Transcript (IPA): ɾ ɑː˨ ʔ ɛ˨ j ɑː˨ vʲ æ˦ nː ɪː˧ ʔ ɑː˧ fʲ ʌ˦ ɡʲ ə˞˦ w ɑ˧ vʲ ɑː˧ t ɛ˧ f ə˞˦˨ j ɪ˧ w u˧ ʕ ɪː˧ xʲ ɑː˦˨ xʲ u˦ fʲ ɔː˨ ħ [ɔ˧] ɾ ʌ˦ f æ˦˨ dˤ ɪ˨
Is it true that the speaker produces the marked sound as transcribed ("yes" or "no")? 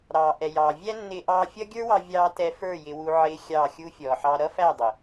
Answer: no